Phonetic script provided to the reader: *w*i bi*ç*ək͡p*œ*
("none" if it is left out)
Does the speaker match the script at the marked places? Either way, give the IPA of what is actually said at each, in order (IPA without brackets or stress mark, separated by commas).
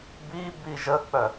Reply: b, ʒ, œ